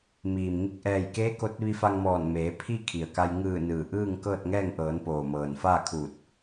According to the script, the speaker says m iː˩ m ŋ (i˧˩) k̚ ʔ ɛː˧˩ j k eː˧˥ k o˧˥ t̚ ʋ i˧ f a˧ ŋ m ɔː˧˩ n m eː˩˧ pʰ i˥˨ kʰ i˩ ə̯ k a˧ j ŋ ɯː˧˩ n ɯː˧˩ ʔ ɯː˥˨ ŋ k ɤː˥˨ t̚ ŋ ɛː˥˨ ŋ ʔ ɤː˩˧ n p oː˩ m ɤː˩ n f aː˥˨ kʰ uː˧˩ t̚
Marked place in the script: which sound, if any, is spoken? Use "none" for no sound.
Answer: i˧˩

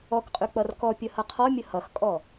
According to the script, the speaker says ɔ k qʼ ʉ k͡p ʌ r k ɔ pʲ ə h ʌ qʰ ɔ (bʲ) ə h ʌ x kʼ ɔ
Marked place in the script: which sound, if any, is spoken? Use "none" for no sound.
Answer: mʲ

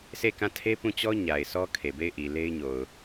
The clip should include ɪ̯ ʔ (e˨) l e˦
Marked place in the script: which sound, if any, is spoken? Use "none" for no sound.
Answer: i˨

